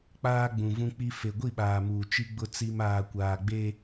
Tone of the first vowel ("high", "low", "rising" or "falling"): high